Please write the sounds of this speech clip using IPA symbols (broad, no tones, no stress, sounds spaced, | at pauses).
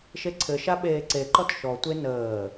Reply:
ʃ e ǀʰ ɘ ʃ a ɓ eː ǀ e ǃ ɔ t ʃ ɔ tʷ e n əː